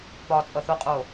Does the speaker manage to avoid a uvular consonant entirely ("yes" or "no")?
no